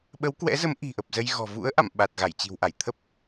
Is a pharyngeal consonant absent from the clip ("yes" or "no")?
yes